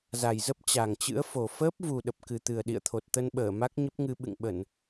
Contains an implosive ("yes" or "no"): yes